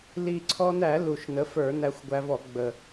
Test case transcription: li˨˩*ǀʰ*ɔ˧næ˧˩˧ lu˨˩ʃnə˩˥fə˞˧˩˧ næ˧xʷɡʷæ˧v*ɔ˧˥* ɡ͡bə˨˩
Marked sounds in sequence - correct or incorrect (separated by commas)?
correct, incorrect